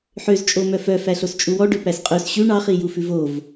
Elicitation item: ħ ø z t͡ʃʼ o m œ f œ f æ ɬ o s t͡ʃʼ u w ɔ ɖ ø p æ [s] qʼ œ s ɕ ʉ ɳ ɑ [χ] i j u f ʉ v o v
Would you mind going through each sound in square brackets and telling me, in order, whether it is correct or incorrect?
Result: correct, correct

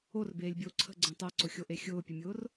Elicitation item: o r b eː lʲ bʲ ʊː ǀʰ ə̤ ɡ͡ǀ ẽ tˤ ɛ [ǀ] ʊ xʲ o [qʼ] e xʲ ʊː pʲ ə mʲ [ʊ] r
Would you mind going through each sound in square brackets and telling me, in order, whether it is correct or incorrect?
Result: correct, incorrect, incorrect

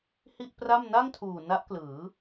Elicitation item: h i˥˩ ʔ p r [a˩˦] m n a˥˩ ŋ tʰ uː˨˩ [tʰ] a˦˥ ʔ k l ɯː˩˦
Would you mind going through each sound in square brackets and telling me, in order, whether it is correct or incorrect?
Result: incorrect, incorrect

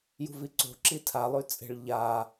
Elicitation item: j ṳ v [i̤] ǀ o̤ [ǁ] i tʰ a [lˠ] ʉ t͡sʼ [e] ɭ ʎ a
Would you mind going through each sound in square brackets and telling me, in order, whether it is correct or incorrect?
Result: incorrect, correct, correct, incorrect

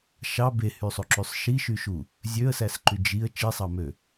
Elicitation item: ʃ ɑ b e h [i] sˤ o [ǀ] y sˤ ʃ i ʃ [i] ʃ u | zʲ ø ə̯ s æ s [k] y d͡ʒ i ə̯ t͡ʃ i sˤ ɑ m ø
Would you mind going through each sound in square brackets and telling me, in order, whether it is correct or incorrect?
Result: incorrect, incorrect, incorrect, incorrect

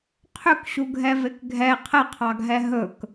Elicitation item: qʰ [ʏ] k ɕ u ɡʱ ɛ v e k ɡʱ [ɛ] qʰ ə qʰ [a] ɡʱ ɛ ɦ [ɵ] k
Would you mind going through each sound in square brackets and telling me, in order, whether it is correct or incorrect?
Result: correct, correct, incorrect, correct

